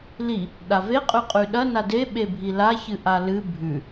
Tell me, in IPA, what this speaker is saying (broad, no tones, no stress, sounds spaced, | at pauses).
l i | ɗ a v e qʼ ʉ qʼ ʉ ɗ ɐ n a d e ɓ e bʱ i l a ç ɨ ʔ a l ɨ bʱ ʉ